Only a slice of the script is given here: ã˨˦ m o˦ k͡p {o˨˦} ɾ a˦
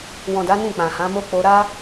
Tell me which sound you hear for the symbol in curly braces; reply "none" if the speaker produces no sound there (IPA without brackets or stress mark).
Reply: o˧